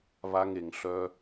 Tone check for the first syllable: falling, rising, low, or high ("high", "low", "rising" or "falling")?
high